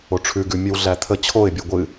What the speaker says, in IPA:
o ʈ͡ʂʰ ʉ ɡ ʉ mʲ ɨ w ɮ æ t̪ʰ ə t͡ɕʰ o ɪ̯ bʲ o ɡʷ ɨ

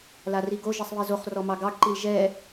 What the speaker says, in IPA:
l a r i ɡ o ʒ i sˤ β i z o χ r ɔ m ɑ ɡ ɑ ɡ ǃ i l ʒ ɛ

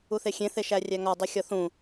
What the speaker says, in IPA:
u θ e xʲ ẽ θ e ʃ æ rʲ æ ŋ ɒ dˤ i xʲ ɒ θ ũ

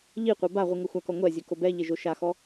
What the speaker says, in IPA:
ʎ i qʷ e b a ʁʷ i ŋ ɤ xʷ a k ɔ ŋʷ ɛ zʲ ɛ k o b ɛ ʎ e ʒ o ʃ a x ɔ

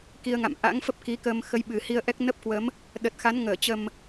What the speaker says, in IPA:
k i˧ ə̯ ŋ a̰˧˨ m ʔ a̰˧˥ ŋ f ə˦˥ p̚ k i˨˦ k əː˧ m x ə˨˦ j ɓ ɨ˨˩ h i˧ ə̯ ʔ ɛ˦˥ k̚ n ə˦˥ p̚ k w ə˨˦ m | ɗ ə˨˩ t̚ x a˨˦ n ŋ əː˧˩ t͡ɕ ə˨˩ m

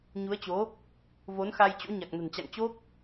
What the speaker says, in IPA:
ɲ u˨˦ ə̯ t͡ɕ o˨˦ | v o˨˦ n x a˧ j t͡ɕ o̰˧˥ ɲ a˨˩ k̚ n ə̤˨˩ n t͡ɕ a̰˧˨ ŋ t͡ɕ o˦˥ k̚

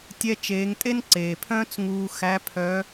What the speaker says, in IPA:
tʲ ɛ˧ t͡ʃ eː˩˧ ŋ tʼ e˥ n ǀ eː˩ pʰ œ̃ː˥ t͡s ŋ uː˧ x æ˧˥ pʰ œ˧˥

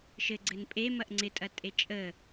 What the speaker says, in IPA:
ʃ ɘ ɡ͡ǀ ɘ n pʼ e m ɐ ʔ ŋ͡ǀ ɪ tʼ ɐ tʼ e t͡ʃʼ ə

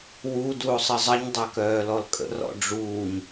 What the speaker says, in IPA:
w u d u o̯ sˤ ə zˤ ə ɲ dˤ œ k œː l ɔ l kʼ ə̰ r ɔ̰ ɖ͡ʐ uː ɲ

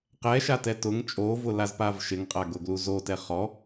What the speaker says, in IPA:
q ɛ ʃ a t ɛ t ʊ ŋ t͡ʃʼ o v ʊ l a z p a v ʃ ɪ ŋ qʼ a ɡ ʊ ɡ l u z o t ɛ χ ɔ

